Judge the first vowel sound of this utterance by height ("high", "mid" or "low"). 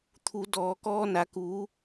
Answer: high